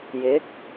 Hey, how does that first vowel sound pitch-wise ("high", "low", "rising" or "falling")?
rising